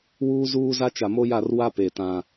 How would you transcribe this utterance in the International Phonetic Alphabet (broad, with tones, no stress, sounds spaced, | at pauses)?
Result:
w uː˦ z uː˦ z a˦ t͡ʃ a˨ m o˦ j a˦˨ r w a˦ p e˨ t ã˨